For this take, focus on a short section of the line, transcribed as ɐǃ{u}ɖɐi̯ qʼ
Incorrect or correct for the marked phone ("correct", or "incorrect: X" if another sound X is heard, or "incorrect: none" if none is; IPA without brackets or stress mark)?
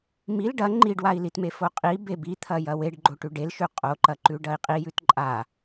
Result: incorrect: ʉ